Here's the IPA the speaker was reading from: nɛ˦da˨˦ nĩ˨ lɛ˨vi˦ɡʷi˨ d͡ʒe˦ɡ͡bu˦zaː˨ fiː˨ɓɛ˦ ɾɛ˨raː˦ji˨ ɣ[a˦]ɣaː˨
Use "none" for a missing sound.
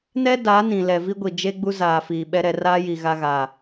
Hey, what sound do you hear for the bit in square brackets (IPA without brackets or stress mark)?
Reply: a˦